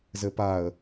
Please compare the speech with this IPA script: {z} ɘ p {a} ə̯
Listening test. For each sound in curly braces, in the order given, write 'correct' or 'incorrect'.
correct, correct

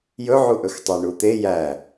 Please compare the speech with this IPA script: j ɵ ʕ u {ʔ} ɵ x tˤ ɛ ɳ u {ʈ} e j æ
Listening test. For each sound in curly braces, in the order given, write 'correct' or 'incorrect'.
correct, incorrect

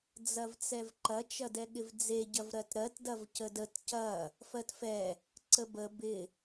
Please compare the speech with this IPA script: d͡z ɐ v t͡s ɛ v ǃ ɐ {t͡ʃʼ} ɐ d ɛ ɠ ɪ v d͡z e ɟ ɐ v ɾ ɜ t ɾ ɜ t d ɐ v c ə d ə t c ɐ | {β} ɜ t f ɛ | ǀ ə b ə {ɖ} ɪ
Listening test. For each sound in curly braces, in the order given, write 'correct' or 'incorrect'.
incorrect, incorrect, incorrect

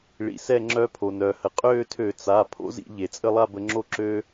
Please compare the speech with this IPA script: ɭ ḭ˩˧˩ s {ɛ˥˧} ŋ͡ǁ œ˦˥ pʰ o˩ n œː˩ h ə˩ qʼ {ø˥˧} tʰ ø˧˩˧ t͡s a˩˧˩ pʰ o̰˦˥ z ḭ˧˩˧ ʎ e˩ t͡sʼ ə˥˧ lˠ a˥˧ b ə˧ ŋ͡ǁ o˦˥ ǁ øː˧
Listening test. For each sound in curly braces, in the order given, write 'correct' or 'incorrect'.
correct, incorrect

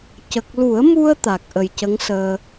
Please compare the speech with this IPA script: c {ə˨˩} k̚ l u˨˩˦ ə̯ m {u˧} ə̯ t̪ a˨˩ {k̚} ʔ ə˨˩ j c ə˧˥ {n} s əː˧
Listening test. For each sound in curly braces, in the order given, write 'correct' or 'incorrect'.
correct, correct, correct, incorrect

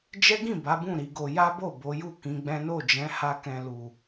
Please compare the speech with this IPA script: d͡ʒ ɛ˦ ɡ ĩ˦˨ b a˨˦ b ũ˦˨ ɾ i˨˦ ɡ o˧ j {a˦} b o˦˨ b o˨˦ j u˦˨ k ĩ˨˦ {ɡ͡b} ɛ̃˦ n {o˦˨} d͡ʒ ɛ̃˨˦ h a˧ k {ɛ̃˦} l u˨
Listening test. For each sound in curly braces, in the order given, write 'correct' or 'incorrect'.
correct, correct, correct, incorrect

